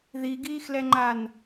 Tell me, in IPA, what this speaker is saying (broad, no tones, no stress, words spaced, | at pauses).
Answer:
ðiɡiːxlɛŋ͡ǃan